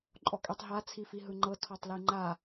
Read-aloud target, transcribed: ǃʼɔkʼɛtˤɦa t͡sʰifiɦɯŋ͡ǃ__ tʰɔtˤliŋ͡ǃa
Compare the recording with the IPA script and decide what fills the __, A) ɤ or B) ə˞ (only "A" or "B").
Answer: A